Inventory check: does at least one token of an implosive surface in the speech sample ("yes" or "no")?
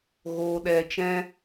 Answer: yes